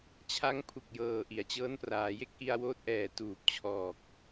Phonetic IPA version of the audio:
t͡ɕʰ a˦˥ ŋ pʰ u˨˩ k̚ j ɤː˨˩ ʔ i˩˦ a̯ t͡ɕ ɤː˦˥ n p r aː˩˦ j e˥˩ k̚ ʔ i˧ a̯ w oː˦˥ t̚ ʔ ɛː˨˩ t uː˨˩ p̚ t͡ɕʰ ɔː˨˩ k̚

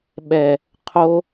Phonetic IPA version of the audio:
ɓ ɛ | qʰ o

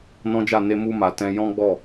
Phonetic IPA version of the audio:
n ɔ̃˦ d͡ʒ a˦˨ n e˧ m u˧ m a˨ t ɛ̃˧ j ɔ̃˦ ɡ͡b ɔ˦˨

